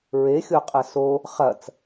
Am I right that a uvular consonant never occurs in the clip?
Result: no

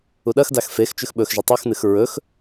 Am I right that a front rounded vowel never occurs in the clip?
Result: yes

